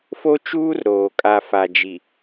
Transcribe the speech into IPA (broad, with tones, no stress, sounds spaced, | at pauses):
f o˦ t͡ʃ uː˦ r ɾ oː˨ kʼ a˦ f a˨ d͡ʒ i˨